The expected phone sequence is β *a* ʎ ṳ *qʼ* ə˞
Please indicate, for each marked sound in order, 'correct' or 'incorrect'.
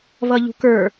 incorrect: ʌ, incorrect: k

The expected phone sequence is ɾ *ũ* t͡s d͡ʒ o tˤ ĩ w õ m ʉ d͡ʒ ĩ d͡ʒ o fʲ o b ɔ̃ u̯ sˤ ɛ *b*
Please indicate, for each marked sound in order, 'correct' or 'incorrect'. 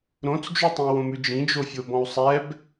incorrect: õ, correct

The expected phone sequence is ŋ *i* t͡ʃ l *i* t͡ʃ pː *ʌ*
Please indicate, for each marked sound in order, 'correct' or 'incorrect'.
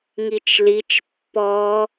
correct, correct, incorrect: ɔ

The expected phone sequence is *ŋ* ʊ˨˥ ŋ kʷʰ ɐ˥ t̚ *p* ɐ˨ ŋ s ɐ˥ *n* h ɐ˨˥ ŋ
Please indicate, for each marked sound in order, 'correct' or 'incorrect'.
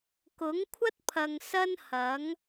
incorrect: k, incorrect: pʰ, correct

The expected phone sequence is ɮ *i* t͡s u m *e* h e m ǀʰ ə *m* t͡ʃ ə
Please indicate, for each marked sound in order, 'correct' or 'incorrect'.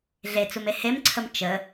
incorrect: e, correct, correct

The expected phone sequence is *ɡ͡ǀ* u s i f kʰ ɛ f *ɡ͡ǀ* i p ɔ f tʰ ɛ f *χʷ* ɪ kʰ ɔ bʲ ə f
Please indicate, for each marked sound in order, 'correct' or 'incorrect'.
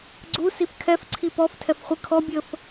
correct, incorrect: ǀʰ, correct

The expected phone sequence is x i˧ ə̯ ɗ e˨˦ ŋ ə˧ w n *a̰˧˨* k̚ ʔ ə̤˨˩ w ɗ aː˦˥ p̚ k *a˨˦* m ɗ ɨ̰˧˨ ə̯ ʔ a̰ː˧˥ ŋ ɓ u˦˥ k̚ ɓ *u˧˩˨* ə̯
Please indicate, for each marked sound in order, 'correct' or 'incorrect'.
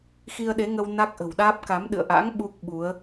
incorrect: a˦˥, correct, incorrect: u˨˦

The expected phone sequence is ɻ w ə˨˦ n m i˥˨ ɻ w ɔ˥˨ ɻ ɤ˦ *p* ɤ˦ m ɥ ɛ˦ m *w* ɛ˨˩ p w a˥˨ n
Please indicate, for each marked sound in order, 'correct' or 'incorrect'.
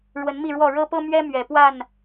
correct, incorrect: ɥ

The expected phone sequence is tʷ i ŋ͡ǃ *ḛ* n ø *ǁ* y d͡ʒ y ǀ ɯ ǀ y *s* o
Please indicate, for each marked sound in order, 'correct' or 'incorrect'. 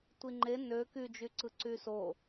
incorrect: e, incorrect: k, correct

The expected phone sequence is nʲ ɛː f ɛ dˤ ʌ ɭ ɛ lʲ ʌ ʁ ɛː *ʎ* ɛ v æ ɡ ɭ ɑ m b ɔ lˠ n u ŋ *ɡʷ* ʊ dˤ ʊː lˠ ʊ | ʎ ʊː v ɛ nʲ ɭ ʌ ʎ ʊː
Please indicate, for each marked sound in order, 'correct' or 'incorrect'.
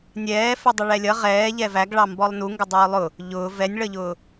correct, incorrect: ɡ

